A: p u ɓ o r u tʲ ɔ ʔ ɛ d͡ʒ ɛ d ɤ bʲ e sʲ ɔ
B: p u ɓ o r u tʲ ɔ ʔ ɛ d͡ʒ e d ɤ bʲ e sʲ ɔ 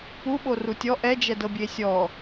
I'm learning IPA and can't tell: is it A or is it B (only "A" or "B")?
A